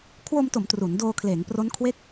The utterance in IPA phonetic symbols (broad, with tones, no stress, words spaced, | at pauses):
kʰwo˧mto˩˦m tru˩˦n doː˧kʰleː˩˦ŋpro˦˥nkʰwe˥˩k̚